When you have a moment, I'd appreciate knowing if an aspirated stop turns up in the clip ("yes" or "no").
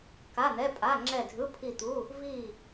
yes